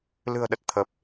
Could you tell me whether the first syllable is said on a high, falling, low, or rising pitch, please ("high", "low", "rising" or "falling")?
low